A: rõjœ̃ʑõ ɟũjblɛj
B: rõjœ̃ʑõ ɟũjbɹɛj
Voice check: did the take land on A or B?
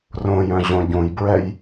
B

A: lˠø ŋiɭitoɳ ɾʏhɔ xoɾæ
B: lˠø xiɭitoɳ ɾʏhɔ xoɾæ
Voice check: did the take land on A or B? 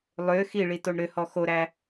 B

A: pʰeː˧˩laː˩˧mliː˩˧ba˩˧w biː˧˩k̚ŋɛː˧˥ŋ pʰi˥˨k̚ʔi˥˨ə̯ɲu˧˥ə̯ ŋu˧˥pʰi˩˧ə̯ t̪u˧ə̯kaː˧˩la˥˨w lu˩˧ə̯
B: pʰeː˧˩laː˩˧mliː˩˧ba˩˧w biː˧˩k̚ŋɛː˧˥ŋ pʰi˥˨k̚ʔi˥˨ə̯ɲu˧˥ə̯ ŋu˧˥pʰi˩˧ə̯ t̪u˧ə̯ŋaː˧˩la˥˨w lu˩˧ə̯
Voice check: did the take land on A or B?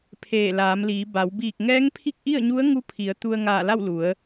B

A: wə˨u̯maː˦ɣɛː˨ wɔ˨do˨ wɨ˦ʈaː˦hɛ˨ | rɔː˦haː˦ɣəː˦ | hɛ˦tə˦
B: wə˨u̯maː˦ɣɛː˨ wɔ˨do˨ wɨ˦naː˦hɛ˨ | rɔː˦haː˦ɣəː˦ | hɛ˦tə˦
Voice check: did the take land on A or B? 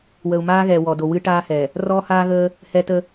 A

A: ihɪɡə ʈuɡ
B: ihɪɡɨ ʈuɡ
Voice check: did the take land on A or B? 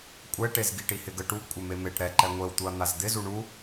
A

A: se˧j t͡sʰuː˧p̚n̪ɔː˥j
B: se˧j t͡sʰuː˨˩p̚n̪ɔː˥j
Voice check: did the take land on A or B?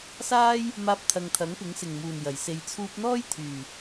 A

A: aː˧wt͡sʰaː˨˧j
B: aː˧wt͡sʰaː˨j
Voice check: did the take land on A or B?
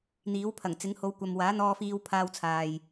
B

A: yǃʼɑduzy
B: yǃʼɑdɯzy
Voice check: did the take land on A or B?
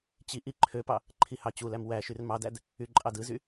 B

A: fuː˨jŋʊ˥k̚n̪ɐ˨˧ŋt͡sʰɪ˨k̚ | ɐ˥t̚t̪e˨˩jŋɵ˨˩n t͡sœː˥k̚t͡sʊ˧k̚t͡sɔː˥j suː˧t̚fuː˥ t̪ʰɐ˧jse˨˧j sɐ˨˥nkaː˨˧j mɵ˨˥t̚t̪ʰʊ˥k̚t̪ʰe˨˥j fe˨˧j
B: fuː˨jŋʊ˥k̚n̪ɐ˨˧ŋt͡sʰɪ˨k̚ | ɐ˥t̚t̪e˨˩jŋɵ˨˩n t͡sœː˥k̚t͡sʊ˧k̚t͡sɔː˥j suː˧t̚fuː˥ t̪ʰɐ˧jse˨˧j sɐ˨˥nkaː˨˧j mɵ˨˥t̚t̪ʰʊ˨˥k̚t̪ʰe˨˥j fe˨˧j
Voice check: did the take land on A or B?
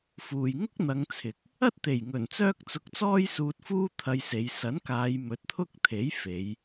A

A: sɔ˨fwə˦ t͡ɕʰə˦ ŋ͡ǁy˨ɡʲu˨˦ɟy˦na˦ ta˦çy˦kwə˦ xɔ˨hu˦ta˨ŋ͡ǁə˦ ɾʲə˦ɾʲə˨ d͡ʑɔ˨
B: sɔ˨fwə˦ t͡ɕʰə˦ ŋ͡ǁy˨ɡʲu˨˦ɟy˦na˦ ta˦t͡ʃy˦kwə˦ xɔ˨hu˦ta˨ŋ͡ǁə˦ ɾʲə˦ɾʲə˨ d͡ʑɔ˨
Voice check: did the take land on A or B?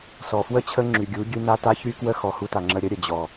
A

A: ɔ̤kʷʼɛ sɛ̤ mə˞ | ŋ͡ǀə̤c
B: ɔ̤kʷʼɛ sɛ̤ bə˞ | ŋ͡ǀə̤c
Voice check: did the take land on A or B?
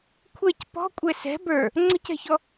B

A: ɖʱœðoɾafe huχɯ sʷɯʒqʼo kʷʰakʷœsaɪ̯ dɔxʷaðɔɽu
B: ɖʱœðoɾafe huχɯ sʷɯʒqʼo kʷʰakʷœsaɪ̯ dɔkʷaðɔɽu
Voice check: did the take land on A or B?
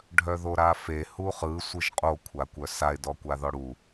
B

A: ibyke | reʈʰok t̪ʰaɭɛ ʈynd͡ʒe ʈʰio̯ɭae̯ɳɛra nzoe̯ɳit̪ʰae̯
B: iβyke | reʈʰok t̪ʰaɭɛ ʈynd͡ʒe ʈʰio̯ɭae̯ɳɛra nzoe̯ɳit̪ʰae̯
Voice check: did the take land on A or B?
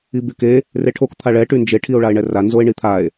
A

